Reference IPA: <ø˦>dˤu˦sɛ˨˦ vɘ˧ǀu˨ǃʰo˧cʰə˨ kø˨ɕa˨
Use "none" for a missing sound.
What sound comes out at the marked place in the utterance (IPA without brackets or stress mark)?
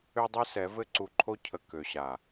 ø˦